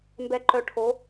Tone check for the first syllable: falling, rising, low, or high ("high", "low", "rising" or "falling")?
low